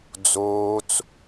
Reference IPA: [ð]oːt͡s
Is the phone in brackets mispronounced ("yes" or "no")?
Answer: yes